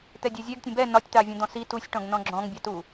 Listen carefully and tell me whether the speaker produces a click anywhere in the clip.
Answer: yes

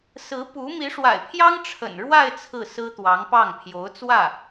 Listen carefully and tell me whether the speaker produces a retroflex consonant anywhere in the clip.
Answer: yes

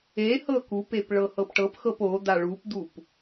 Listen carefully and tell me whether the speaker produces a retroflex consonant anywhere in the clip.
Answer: yes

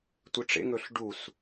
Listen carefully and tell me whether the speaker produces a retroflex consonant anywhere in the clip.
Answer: yes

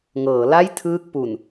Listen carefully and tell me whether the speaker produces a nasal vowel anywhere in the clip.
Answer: no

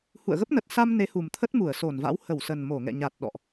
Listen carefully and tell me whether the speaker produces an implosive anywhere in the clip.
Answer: yes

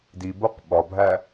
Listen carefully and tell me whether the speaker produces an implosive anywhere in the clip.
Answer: yes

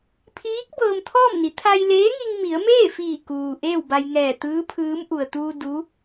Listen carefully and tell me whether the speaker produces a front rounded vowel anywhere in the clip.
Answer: no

